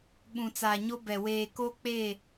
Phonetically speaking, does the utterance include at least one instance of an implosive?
yes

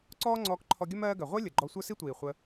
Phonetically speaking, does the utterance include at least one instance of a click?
yes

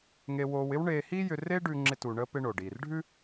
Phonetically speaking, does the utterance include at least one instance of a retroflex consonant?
yes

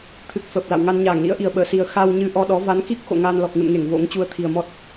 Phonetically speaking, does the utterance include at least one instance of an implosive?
yes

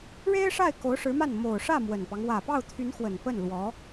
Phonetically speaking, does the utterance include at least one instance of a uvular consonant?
no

